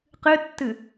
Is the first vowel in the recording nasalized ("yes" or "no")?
no